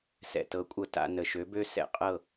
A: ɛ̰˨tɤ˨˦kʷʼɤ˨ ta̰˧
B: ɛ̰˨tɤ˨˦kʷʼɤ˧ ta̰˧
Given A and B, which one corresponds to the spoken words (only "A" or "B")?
B